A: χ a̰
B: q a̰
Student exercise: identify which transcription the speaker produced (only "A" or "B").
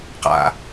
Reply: B